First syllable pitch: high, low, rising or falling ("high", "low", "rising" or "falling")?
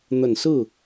low